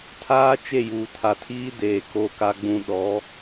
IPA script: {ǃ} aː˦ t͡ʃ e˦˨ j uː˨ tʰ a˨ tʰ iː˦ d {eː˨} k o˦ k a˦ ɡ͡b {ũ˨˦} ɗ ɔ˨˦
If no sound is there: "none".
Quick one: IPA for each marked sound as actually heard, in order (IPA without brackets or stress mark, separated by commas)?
tʰ, eː˨, ũ˦